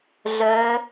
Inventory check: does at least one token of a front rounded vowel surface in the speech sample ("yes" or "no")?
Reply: yes